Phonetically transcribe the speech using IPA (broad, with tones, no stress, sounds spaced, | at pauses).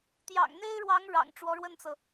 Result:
t̪ j ɑ̰˨˩ ŋ n̪ e˥ ɪ̯ ɻ w ɑ˧˥ ŋ ɻ ɑ̰˨˩ ŋ ʈ͡ʂ w ɔ˧˥ ɻ w ə˥˩ n t͡s ɤ˩